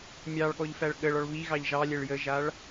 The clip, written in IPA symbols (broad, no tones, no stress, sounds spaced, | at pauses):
mʲ ɑ ɭ ɠ ɔ ʎ f æ ɭ ɠ ə ɭ ɔ ɭ β i ɣ ɑ ʎ ʒ ɑ lʲ ɛ ɭ j ə ʒ a ɭ